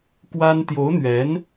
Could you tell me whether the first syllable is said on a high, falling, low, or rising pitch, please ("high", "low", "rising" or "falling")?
high